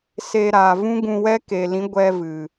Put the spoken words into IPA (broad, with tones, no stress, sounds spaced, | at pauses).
s e˧ ɾ aː˨ v ũ˦ ɡ ũ˧ w ɛ˦ k e˨ l ĩ˨˦ ɡʷ ɛ˧ v ɨ˨